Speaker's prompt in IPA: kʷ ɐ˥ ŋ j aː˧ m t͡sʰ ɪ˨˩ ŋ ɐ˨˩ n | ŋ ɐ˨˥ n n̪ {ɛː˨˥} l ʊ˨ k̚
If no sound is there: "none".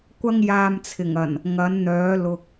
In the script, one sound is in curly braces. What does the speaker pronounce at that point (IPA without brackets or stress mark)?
œː˨˥